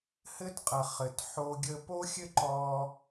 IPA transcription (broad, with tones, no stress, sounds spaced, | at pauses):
h ɘ˥ t qʼ ɐ˩ χ ɘ˩ t ħ o˧ ɡʲ ə˧ p o˥ xʲ ɘ˥ ǃ ɔ˧